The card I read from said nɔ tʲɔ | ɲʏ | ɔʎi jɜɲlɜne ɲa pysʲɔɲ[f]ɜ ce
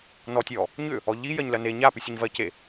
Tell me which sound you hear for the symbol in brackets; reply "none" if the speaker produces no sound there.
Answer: v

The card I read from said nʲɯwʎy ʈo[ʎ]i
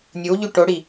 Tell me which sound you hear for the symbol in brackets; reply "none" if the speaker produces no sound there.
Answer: ɽ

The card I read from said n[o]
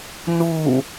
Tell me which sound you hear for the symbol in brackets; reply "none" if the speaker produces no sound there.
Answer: u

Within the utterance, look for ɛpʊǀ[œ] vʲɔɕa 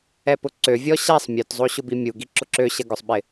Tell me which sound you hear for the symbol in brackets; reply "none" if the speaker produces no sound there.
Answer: ø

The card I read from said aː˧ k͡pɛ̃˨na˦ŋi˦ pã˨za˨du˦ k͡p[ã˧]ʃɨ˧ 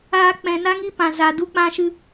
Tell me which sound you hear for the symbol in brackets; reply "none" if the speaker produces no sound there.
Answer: ã˧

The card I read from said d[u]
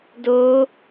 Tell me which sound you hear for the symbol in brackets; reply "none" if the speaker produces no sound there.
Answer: o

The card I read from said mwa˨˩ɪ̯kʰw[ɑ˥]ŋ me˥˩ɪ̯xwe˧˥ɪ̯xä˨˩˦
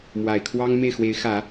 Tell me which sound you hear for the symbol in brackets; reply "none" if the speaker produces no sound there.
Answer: ɑ˥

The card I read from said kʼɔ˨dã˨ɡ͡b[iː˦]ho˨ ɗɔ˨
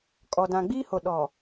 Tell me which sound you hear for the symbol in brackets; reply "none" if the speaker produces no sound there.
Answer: iː˦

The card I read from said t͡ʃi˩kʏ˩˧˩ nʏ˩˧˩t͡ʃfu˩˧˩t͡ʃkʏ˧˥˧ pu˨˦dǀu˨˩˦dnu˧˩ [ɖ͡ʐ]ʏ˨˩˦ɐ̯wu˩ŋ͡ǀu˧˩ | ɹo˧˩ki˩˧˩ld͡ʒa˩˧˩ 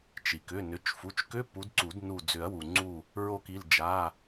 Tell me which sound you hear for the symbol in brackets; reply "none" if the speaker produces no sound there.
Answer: d͡z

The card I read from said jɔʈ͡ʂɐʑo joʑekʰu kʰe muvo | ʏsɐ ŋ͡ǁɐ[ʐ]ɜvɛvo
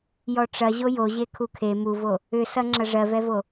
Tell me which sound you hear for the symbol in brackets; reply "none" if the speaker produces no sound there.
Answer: ʐ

